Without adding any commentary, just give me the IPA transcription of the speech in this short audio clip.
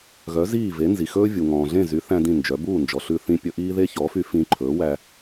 ɣ œ˩˥ z iː˥˩ v e˩˥ n z i˩ x ɵː˥ vʲ u˩ ŋ ɔ̃ː˩ ɮ ẽ˥˩ z y˩˥ θ æ̃˧ d ĩ˥˩ n d͡ʒ œ˩˥ b uː˥˩ n d͡ʒ ɔ˩ ɬ ʉ˧ θ ĩ˧ pʲ ɵ˧ ʔ iː˥ ð e˥ ç ɔ˩˥ f y˧ f ĩ˧ ǃʰ ɵː˩˥ w æ˧

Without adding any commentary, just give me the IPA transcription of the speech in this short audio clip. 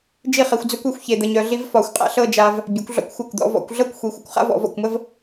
d͡ʒ i˥˧ χ e˧ xʷ d͡z œ˥ kʷ e˥˧ xʷ ç e˧ d̪ ə˧ ɲ œ˧ ɮ i˥ v f ɒ˧˩ xʷ qʼ a̰˥ ɬ ɤ˥˧ d͡ʒ a˧ v | bʲ œ˩˧ kʷ ɮ ɔ̰˧ kʷ xʷ a˧˩ kʷ d̪ ɔ̰˩˧ v ɔ̰˩˧ kʷ ɮ ɤ˥˧ kʷ xʷ i˩˧ xʷ ə˧ kʷ χ a̰˥ v ɔ̰˩˧ v ɔ̰˧˩ kʷ m ə˥ v

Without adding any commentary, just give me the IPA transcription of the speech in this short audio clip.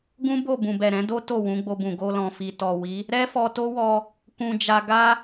ɡ ũ˦ b o˦˨ b ũ˨ b ɛ˨ ɾ ɛ̃˨˦ d o˦ t o˦˨ w ũ˨˦ ɡ͡b o˧ b ũ˨ ɡ o˧ l ɔ̃˨ f i˨ t ɔ˨ w i˨˦ | ɾ ɛ˦ f ɔ˧ t o˦ w ɔ˧ | k ũ˧ d͡ʒ a˧ ɡ a˦

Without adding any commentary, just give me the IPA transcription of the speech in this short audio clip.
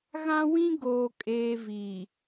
ɣ ã˦ w ĩ˦ ɡ oː˦ kʼ eː˦ v i˨

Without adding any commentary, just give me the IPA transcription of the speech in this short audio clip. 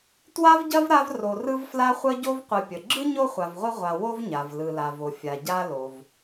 t w a˥ v ɟ ɐ˥ v ɾ a˦ v r o˨ r ɯ˦ v f l a˦ χʷ ə˦ ɟ o˦ v qʷ ɯ˨ pʲ ə˩ ɡ͡ǁ ɯ˥ ɲ o˥ χʷ a˨ v ʁʷ ɯ˦ ʁʷ a˨ w o˥ v ɲ a˩ v l ɯ˨ l a˨ v o˨ fʲ a˩ ɟ a˦ l o˩ v

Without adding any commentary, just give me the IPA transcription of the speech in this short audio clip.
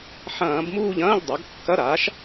ħ ɐ̃ː˧˩˧ b m uː˦˨ ʎ ɐ̃ː˧˥˧ ʎ dˤ a˩˥ ɡ kː ɐ˧˥˧ ɾ aː˩˥ ʃ

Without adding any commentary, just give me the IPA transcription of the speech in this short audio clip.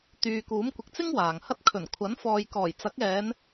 t̪ yː˨ k uː˨˥ m kʷ ɪ˨ k̚ t͡s ɪ˥ ŋ w aː˨ ŋ h ɐ˥ t̚ kʰ ɵ˨˩ n kʷʰ ɐ˨˥ n f ɔː˨ j k ɔː˨˩ j t͡s ɐ˨˥ k̚ ɛː˨˧ n

